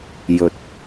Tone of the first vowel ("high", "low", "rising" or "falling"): rising